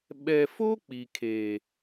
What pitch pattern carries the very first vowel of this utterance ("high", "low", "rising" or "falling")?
low